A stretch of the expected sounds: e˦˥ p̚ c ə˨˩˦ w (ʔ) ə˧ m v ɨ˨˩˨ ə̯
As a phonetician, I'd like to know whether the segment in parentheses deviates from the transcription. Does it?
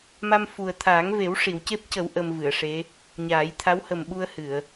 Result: no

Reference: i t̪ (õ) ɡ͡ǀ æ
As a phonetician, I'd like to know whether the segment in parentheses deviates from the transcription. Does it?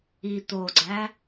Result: yes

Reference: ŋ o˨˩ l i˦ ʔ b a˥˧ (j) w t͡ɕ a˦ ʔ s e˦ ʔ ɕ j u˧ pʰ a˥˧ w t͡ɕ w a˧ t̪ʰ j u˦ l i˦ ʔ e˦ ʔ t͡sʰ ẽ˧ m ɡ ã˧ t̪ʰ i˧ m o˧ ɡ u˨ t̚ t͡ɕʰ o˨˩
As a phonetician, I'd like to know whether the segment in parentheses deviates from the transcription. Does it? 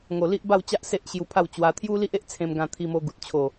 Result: yes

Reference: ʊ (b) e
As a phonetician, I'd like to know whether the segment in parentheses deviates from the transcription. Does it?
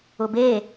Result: no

